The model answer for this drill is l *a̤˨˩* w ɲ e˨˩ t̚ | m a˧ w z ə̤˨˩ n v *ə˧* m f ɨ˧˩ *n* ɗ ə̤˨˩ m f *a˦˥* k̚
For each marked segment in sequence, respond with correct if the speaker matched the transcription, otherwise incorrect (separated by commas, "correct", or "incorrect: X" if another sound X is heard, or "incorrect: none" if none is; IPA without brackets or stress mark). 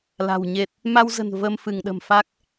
correct, correct, incorrect: ŋ, correct